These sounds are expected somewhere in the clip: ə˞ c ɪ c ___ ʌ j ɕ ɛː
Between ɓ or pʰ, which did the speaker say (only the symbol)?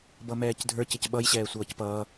ɓ